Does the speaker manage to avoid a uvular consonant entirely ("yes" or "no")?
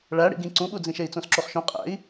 no